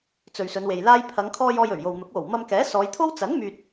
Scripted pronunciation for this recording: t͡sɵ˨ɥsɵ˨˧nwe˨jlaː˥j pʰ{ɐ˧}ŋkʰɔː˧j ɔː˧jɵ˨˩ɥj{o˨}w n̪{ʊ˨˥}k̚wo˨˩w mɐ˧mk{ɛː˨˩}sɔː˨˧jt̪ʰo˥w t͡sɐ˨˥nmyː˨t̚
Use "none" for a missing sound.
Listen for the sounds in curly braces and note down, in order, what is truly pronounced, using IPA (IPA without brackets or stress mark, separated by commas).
ɐ˨˧, o˨, ʊ˨˥, ɛː˨˥